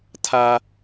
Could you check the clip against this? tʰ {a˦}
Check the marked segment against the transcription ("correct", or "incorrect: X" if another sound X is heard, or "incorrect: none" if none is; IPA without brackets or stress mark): correct